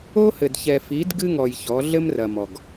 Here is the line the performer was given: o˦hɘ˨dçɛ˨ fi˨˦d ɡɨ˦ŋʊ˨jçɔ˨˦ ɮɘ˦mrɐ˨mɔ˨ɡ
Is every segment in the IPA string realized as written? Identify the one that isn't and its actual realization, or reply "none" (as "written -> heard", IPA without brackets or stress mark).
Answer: ʊ˨ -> ɔ˨